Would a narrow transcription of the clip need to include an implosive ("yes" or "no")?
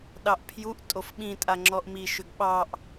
yes